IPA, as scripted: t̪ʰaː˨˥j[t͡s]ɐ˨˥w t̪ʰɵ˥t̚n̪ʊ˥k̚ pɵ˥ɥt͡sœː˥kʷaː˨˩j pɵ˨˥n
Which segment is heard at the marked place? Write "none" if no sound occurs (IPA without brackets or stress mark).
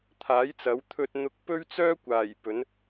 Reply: t͡s